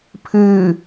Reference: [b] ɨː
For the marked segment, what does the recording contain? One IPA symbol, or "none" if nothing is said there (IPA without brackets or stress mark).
pʰ